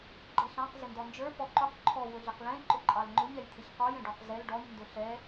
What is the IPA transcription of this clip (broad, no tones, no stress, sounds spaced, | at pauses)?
ɡ͡ǃ ɛ ɬ ɑ̃ q z ɪ n d ɔ n d͡ʒ ə˞ f ɔ ǃ ʊ q ǃʰ ɔ w ʊ ɮ ɪ q l ɛ̃ ǃ ʊ ǃʼ ɑ l ŋ͡ǃ ʊ ɲ ɛ j t̪ʰ ɪ ç q ɔ j ɛ̃ ɖ ɔ q z ɛ l ɖ ɔ ɲ n d ʊ ɬ ɛ